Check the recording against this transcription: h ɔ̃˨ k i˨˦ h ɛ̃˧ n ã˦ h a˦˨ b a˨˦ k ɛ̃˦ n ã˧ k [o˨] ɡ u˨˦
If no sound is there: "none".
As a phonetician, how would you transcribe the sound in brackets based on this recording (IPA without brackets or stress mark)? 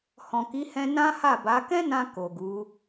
o˨